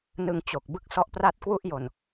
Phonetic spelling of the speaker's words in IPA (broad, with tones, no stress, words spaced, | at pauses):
nɯ˧ŋt͡ɕo˨˩k̚ bɯ˦˥k̚sɔ˦˥ʔpra˥˩t̚ kwu˥˩ʔjo˨˩n